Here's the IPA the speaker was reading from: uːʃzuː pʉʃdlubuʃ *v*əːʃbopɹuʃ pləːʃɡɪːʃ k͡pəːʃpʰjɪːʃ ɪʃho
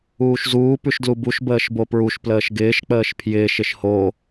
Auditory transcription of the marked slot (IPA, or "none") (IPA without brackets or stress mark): b